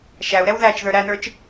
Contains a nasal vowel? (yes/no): no